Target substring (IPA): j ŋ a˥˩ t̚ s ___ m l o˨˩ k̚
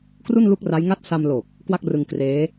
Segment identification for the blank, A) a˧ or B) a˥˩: A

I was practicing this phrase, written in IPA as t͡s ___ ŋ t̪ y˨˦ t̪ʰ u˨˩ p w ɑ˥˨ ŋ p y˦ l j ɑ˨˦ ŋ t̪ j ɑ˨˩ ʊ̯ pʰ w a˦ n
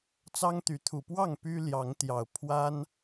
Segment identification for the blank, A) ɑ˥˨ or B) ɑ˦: B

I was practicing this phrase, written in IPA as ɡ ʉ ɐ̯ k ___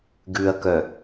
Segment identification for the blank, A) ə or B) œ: B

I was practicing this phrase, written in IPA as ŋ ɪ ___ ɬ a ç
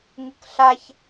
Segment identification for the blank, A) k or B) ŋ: A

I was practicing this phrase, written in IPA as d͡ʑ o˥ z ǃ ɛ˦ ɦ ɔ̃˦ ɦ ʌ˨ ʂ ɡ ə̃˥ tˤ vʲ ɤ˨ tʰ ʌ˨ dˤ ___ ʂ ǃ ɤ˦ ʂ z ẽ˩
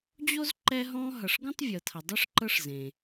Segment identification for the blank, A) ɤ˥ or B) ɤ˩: A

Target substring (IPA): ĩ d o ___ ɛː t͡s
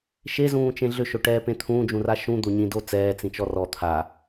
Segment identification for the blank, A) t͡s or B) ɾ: A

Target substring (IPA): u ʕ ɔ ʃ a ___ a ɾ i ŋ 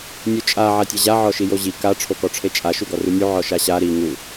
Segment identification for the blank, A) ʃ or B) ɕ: B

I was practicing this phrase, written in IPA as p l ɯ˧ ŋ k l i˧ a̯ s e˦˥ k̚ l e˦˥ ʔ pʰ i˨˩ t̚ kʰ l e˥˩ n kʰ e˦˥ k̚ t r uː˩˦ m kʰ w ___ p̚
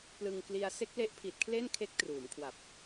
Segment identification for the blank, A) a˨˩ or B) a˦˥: A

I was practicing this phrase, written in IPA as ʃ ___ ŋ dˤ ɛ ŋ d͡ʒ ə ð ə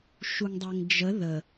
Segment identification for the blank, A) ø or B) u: B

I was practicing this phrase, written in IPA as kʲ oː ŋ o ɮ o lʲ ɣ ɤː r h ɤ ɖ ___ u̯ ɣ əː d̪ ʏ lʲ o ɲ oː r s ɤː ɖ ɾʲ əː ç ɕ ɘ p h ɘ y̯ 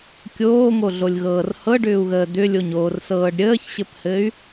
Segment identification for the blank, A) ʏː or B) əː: A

